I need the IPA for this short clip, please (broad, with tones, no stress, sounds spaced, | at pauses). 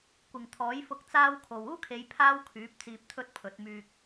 kʷ ɪ˨ ŋ t̪ʰ ɔː˨˥ j f ʊ˧ k̚ t͡s aː˥ w kʰ o˨ w uː˥ kʰ e˨˧ j pʰ aː˥ w kʰ yː˨˥ p̚ t͡s iː˧ p̚ t̪ʰ ɵ˥ t̚ pʰ ɵ˨˥ t̚ m yː˧ k̚